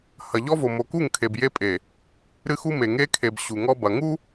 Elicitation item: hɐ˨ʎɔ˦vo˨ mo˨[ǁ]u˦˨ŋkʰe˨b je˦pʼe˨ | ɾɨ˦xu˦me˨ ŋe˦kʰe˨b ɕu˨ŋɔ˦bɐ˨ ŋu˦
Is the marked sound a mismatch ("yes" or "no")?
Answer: yes